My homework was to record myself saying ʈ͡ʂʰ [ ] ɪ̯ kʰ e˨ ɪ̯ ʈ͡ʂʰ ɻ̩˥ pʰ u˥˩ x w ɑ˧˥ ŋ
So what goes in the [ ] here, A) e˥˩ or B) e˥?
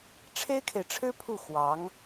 B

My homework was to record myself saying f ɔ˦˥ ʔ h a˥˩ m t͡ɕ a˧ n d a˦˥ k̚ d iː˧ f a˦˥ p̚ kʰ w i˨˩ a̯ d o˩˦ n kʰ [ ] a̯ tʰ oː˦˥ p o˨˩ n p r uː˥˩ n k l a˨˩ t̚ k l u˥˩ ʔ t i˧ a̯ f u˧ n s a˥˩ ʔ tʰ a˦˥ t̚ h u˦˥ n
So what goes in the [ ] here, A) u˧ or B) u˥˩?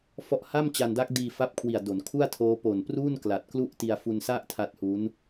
B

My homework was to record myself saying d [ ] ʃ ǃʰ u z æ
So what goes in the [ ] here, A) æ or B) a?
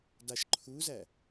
B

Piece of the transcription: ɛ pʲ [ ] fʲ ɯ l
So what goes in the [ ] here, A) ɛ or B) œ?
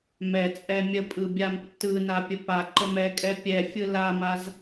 A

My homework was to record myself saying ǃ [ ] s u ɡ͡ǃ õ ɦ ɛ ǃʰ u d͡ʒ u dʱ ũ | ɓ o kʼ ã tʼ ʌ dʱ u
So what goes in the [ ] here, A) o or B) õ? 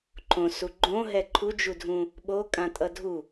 B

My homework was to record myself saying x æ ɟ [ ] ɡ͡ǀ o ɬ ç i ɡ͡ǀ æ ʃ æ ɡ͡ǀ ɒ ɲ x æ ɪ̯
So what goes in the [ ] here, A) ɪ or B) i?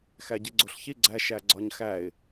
B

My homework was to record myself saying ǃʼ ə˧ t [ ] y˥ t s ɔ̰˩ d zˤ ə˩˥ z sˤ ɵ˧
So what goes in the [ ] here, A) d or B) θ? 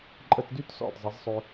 A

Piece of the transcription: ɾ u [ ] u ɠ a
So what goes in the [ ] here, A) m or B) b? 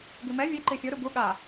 B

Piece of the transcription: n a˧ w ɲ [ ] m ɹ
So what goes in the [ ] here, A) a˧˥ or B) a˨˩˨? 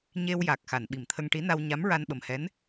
A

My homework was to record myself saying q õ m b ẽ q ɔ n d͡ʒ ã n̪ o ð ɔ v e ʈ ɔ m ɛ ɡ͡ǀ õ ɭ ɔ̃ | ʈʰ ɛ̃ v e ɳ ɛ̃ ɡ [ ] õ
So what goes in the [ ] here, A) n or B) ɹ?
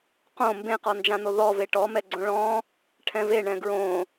B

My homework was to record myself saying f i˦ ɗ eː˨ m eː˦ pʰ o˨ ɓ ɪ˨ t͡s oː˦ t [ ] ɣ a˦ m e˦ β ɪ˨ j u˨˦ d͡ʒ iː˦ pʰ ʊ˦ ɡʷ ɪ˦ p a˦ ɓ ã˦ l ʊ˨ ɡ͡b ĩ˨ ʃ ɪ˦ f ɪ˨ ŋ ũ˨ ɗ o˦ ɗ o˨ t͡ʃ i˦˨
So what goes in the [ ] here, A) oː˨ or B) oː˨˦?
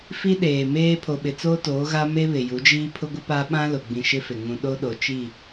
B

